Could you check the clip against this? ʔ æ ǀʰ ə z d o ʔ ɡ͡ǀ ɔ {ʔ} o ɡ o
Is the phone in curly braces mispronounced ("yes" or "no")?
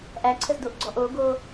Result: no